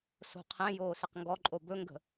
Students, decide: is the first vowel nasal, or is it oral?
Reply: oral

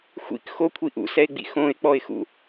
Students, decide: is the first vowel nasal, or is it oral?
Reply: oral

